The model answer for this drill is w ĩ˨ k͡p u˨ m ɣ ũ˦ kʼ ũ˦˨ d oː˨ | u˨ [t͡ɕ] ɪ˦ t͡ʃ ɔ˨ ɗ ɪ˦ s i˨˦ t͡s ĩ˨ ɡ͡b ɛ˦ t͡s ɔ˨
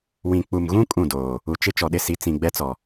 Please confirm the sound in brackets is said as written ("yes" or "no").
no